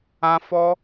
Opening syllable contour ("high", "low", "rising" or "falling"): high